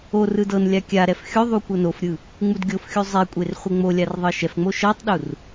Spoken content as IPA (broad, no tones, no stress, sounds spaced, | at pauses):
o r ɯ d ɤ n lʲ a kʲ a ɾ ɛ f xʲ o ðˤ u kʷ ɤ n o f ɾʲ ɯ | ŋ͡m u d ɡʲ o f xʲ u zˤ e kʷʼ e r χʷ e ŋ͡m o lʲ a r ðˤ ɤ ʃ ɛ f ŋ͡m o ʃ ɤ tˤ ɗ u r